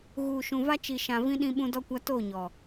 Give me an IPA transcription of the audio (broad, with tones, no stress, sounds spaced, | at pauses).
ɣ uː˨ ʃ ũ˨ v a˦ t͡ʃ i˨ ʃ ã˨ v ĩ˦ ɗ ĩ˦ ɓ ũ˦ d ɔ˦ kʷ a˦ t o˦˨ ɲ ɔ˨